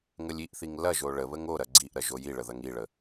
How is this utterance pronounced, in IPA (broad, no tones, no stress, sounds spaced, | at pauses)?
ŋ ə lʲ i ʔ θ i ŋ l ɐ ʒ o ɭ ə β ə ŋ o ɾ ɐ ɡ͡ǀ i ʔ ɾ ɐ ʒ o j i ɭ ə ð ɐ ŋ i ɭ ə